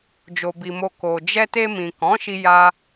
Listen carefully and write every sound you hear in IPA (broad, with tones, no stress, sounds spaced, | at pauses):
d͡ʒ o˨ b i˨ m o˨ k o˨ d͡ʒ ɛ˧ t e˧ m ĩ˨ k ɔ̃˨˦ ʃ i˧ j a˧